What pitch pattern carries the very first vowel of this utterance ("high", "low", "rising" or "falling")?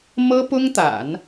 high